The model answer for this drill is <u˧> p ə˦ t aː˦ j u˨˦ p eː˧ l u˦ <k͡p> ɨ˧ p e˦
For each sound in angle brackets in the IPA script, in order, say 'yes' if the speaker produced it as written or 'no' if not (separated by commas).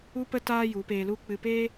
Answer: no, yes